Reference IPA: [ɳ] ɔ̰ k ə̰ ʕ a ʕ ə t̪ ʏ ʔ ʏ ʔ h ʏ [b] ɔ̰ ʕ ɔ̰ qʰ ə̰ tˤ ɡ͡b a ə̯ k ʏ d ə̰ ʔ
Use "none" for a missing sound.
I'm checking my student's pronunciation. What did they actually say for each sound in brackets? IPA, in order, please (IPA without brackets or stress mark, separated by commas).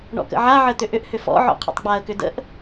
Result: ɳ, f